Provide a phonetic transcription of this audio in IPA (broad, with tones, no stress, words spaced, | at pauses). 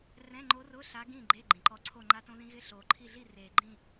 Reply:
rɛ̃˧˥˧ŋ͡ǃo˧˥rʊ˧˥˧ ɬa˧˥ɡĩː˥˨ɡ͡ǃe˧˥˧ ɡ͡ǃĩ˨˩ǃɔ˧˥ǀʰo˥˨ ŋ͡ǃa˧˥tõ˧˥ðĩ˧˥ ɣɪ˧˥˧ɬoː˨˩ ǃʰi˥˨ ɮi˥˨ reː˨˩ɡ͡ǃĩ˥˨